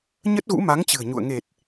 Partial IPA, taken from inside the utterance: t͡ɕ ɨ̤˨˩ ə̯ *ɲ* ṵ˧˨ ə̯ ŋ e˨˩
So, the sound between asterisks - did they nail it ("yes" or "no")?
yes